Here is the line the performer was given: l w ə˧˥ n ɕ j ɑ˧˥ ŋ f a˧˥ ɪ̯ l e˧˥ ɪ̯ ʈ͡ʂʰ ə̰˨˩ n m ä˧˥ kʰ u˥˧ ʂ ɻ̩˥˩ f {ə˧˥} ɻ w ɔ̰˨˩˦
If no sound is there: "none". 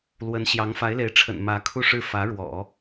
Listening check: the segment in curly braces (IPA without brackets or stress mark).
ä˧˥